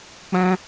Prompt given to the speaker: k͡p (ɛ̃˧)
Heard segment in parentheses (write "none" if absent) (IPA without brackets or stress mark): ɛ̃˧